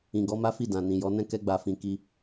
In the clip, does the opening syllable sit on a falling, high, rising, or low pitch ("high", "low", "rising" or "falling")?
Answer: low